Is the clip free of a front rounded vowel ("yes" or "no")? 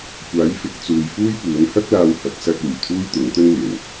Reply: no